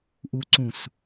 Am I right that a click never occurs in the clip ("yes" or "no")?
no